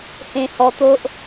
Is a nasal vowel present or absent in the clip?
present